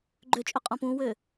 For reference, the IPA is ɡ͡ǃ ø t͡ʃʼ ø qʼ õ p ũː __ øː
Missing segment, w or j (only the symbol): w